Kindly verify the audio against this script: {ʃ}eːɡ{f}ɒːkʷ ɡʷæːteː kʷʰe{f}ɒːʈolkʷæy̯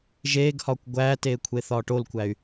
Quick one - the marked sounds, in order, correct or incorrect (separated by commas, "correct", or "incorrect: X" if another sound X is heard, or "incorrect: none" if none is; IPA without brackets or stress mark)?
incorrect: ʒ, incorrect: h, incorrect: θ